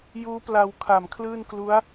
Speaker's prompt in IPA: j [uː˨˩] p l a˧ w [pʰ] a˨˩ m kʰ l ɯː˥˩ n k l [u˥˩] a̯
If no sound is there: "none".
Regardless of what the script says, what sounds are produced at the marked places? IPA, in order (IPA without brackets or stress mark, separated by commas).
uː˦˥, kʰ, u˦˥